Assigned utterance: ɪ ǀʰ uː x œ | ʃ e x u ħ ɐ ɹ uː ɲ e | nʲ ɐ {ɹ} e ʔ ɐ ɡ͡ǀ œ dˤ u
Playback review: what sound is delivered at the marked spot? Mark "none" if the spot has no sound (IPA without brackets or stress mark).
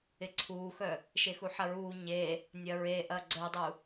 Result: ɹ